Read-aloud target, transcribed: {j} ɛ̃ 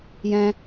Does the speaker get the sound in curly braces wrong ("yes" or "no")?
no